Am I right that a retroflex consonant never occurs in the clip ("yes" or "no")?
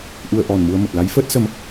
yes